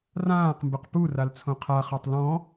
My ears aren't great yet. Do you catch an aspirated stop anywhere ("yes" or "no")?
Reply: yes